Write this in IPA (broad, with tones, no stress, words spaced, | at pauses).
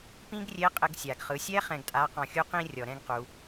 pĩ˥ɡrʲe˧˥qʼɘ˧ɡ sʲa˩ɡχɯ˩˧sʲɛ˥ χɛ̃˧ɡtʼa˧˥qɔ̃˧xʲu˥ qĩ˧rʲɔ˩ɾɛ̃˧ɡ qu˩˧